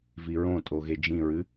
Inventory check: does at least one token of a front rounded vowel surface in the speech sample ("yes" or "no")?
no